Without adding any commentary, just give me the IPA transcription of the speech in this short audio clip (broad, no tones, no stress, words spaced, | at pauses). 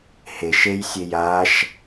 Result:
heʃ ejsʲej aʃ